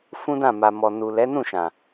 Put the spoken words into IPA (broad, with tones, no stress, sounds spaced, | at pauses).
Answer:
f ũ˦ d ã˦˨ m a˨ m ɔ˨ n u˨ l ɛ˨˦ n ũ˦˨ ʃ ã˨